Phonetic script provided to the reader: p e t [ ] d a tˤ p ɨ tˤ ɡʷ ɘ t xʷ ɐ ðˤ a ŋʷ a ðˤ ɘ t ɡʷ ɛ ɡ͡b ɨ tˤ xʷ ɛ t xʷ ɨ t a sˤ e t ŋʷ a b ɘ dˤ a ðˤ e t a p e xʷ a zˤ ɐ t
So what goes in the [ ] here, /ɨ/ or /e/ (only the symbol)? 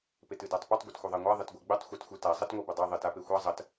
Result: ɨ